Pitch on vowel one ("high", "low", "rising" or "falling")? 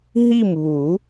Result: falling